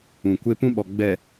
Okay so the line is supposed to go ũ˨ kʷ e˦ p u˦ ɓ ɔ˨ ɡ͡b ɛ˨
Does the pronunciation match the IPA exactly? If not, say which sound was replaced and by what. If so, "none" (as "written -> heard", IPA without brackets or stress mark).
u˦ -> ũ˦